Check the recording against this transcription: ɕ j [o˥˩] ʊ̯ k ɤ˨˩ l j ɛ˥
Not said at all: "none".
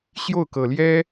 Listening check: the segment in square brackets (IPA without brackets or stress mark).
o˥˩